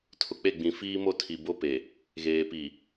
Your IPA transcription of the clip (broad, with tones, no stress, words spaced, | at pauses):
tʰʊ˨k͡pe˦˨ɡ͡bĩ˨ fiː˦mo˦tʰi˨ bo˦pe˨ | ɣeː˨pi˨